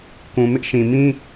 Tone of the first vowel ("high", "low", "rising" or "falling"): low